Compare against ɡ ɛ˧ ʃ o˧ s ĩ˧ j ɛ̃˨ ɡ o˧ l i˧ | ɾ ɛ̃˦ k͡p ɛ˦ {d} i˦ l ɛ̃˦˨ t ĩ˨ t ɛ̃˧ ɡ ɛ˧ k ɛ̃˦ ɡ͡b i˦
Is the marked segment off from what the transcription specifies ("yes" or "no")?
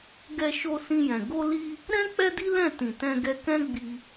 no